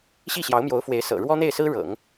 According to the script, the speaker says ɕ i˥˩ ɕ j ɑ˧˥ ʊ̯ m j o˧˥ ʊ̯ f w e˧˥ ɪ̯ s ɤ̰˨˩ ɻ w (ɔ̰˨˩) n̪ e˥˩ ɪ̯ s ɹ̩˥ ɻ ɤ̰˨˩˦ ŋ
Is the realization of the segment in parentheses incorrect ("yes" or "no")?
yes